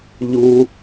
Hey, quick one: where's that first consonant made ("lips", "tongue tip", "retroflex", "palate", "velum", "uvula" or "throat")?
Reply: palate